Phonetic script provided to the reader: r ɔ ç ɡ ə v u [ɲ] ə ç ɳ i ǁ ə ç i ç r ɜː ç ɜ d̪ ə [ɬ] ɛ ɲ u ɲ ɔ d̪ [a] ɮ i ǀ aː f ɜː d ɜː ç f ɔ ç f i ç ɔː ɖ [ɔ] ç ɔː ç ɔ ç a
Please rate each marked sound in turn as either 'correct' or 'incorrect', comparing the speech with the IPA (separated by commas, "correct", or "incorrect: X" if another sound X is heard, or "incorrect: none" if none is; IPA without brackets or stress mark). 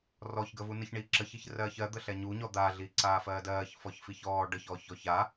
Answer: incorrect: n, correct, correct, incorrect: ə